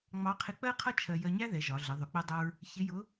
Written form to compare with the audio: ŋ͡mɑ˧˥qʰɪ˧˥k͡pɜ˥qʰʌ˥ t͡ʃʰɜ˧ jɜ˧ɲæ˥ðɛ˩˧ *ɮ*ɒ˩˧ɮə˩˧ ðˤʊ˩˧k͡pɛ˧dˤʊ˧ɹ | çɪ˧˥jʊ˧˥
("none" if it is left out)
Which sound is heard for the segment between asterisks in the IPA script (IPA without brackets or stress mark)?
ʒ